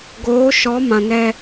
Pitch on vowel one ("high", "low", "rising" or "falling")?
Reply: rising